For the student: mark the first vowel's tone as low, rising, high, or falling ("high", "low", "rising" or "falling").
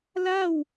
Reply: falling